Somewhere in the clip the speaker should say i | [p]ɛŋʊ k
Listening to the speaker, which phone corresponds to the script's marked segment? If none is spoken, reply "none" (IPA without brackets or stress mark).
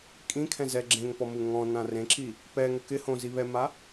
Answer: p